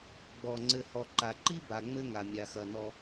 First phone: ɡ͡b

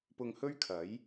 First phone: p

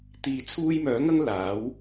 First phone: t̪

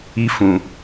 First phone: i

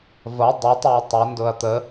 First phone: v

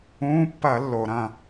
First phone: ũː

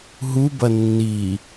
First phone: ɦ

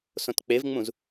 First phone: s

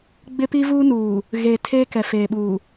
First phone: ɡ͡b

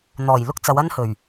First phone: n̪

